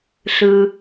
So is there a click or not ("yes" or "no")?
no